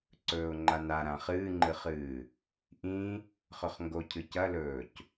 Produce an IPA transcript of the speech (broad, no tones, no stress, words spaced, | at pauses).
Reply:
ǀɵːʊ̯ŋ͡ǃana ɾãχɨːŋ͡ǃɨχɨː | ʔĩ | χɵχŋɡocʰɨ cɐlɵːc